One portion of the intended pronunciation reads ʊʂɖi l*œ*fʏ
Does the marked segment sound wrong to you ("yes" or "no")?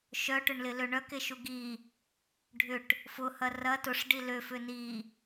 yes